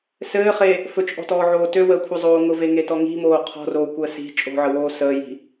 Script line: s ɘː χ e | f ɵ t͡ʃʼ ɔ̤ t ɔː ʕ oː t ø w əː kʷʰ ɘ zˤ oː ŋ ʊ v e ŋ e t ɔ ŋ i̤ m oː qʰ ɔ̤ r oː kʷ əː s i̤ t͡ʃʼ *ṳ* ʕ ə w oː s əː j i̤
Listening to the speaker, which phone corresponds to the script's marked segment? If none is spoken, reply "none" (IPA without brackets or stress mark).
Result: o̤